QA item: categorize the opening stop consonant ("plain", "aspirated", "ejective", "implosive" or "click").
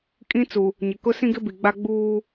ejective